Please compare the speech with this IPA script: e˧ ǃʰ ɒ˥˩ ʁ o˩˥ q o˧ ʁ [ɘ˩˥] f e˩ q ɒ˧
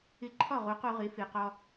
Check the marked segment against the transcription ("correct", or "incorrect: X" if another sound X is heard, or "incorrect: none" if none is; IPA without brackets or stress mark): incorrect: e˩˥